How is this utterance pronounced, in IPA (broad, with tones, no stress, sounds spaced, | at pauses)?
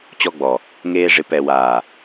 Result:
t͡ɕ ɔ˧ ɡ͡b ɔ˨ | ŋ eː˧ ʐ ɪ˨˦ p ɛ˨ w aː˨